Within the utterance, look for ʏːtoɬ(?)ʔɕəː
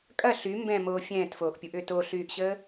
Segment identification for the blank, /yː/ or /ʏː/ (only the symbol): yː